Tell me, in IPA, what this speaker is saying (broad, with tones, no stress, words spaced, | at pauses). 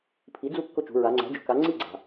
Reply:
pʰi˩˥d͡zu˥˨ kːʊ˥˨t͡ʃṳ˩˧ ɹa˩˧ŋ͡ǀæ̤˩˥d͡ʒʊ˩˥ka˩˥ ŋ͡ǀi˥˨ɡ͡ǀa̤˩